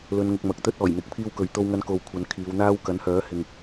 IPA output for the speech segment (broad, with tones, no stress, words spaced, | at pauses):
lɵ˨˧nŋʊ˨k̚mɐ˨k̚ t̪ɵ˥t̚ɔː˨˩jn̪ɪ˨˥k̚ pʰiː˥wkɵ˨˧ɥt̪o˥wŋɐ˥n ko˧wkʷʰɐ˨˧n kʰiː˨˧w n̪aː˥w kɐ˨˥nhœː˨˥ hɪ˨ŋ